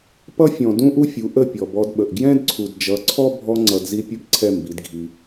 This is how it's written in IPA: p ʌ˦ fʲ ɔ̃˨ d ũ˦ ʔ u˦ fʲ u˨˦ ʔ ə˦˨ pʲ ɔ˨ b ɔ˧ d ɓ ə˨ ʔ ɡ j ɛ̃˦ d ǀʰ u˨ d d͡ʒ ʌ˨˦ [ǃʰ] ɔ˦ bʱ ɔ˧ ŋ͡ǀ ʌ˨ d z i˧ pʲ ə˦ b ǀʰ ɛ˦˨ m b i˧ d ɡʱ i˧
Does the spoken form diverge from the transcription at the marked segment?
yes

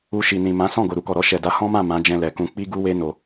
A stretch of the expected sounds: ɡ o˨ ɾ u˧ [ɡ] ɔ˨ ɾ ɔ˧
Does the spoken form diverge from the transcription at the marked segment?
yes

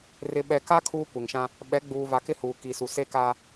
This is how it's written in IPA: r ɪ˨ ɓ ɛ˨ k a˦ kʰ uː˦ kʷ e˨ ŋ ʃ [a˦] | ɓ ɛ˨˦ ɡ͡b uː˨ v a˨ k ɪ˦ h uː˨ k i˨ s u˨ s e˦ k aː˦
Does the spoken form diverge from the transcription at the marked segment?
yes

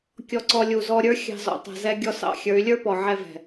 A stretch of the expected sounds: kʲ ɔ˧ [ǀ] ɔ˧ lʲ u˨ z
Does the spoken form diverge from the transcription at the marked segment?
no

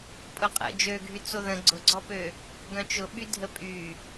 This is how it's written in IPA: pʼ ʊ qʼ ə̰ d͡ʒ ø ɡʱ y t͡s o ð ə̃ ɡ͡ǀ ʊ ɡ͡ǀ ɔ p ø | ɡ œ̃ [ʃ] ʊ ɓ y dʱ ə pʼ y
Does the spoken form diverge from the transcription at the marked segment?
yes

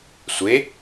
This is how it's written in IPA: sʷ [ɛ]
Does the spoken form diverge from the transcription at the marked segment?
yes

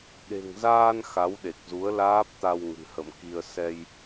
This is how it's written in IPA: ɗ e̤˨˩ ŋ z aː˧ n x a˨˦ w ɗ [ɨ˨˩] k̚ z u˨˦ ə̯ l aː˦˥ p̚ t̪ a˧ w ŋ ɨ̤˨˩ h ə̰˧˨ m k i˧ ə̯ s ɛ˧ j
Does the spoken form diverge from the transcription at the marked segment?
yes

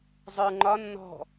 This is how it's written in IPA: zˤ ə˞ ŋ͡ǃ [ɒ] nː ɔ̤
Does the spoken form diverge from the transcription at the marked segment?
no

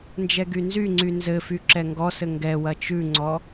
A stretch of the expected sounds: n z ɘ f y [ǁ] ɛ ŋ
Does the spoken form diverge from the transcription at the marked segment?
no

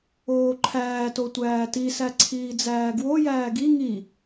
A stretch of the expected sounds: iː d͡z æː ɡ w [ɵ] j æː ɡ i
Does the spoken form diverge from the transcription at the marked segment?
yes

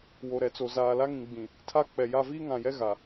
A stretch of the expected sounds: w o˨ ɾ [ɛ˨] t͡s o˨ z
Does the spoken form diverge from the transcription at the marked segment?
no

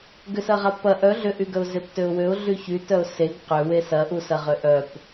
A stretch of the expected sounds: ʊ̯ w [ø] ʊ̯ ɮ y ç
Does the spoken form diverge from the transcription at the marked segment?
no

